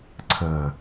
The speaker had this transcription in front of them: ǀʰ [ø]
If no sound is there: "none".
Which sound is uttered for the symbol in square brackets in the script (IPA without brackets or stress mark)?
ə